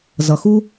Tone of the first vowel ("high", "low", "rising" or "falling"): low